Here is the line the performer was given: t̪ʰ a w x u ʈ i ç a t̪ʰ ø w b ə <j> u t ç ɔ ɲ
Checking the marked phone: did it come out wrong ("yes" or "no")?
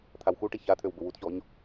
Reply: yes